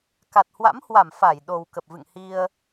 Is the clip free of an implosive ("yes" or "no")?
no